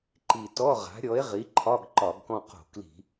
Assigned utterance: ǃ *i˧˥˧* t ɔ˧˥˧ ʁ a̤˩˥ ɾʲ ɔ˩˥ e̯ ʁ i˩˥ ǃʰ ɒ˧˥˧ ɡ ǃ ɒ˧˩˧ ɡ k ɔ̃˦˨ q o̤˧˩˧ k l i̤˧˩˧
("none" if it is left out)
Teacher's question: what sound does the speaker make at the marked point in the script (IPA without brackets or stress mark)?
i˨˩